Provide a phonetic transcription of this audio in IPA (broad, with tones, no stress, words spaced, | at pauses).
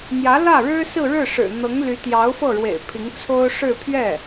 n̪jä˧˥lä˥˩ɻɻ̩˥ sɹ̩˥˧ɻɻ̩˥˩ʂɻ̩˨˩ n̪ɤ˧˥ŋly˧˥ t̪jɑ˧˥ʊ̯fɤ˥˩ɻwḛ˨˩ɪ̯ pʰi˧˥ŋt͡sʰo˥ʊ̯ ʂɻ̩˥˧ pʰɥɛ˥˩